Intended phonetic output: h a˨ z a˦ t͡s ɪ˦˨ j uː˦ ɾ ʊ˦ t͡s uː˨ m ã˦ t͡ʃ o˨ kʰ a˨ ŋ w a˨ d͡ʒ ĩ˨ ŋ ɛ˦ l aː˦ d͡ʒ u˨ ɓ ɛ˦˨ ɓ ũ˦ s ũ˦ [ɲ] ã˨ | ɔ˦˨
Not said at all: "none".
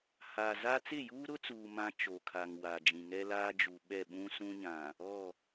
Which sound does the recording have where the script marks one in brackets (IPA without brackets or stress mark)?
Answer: ɲ